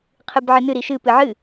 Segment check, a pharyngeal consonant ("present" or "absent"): present